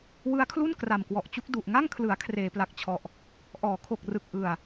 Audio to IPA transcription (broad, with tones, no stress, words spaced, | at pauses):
wɯ˦˥a̯kʰlu˥˩n kra˨˩mkwɔ˨˩ʔt͡ɕu˦˥k̚ du˨˩ʔŋa˥˩ŋkʰlɯ˩˦a̯ kʰreː˩˦pla˨˩k̚t͡ɕʰɔ˨˩ʔ | ʔɔː˩˦kʰo˨˩k̚rɯ˨˩k̚ ʔɯ˨˩a̯